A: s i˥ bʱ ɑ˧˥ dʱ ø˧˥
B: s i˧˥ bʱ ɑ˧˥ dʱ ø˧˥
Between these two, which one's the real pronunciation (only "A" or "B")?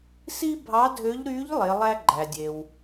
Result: A